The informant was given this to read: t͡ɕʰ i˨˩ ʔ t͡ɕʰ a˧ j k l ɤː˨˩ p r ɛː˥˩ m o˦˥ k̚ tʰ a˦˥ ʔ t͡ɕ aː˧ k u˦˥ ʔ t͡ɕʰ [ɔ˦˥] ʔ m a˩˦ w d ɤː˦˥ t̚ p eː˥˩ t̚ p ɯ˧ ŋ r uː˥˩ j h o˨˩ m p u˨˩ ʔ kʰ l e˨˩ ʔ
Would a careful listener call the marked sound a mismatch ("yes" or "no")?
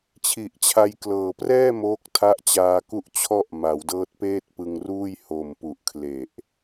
yes